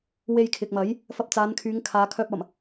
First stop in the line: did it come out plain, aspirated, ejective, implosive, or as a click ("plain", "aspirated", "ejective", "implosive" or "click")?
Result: aspirated